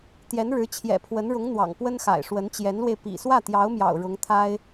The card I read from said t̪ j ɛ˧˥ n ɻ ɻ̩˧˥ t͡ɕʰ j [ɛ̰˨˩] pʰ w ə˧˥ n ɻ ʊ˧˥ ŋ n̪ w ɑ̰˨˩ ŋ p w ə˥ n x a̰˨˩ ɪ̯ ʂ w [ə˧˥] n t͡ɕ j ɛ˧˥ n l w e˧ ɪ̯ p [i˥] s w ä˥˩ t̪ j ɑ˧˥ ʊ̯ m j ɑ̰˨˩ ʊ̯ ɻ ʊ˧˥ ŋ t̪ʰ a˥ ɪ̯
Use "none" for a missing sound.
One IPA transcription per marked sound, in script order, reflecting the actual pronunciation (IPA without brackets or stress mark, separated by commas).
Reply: ɛ̰˨˩, ə˧˥, ḭ˨˩